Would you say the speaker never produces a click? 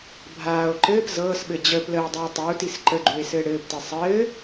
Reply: no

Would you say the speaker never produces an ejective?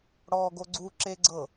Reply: yes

